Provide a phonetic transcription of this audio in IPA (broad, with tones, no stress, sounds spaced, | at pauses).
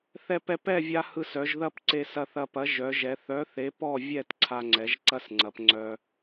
θ ɛ˧ p ɛ˧ p ɛ˥˨ vʲ a˧ h ɯ˧ s œ˩˧ ʒ ð ɐ˥˨ p ǀ e˧ s ɐ˧ θ ɐ˧ p ɐ˨˥ ʒ œ˩˧ ʒ ɛ˩˧ θ œ˨˥ θ e˨˥ p ɔ˥˨ vʲ ɛ˥˨ t ǀʰ a˧ ŋ͡ǀ ɛ˩˧ ʒ ǀ ɐ˥˨ s ŋ͡ǀ ɐ˩˧ p ŋ͡ǀ œ˧